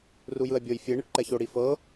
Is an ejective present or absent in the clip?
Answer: absent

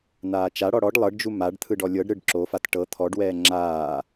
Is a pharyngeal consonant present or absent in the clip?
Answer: absent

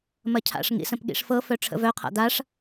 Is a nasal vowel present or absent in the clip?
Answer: present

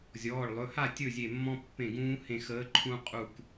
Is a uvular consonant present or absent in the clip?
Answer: present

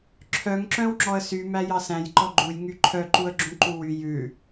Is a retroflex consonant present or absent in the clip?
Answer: absent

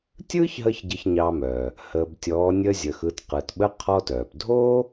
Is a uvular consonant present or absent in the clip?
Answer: present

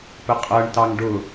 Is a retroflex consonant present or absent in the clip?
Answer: present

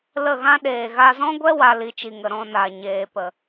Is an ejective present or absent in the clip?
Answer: absent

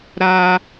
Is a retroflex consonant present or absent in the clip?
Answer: absent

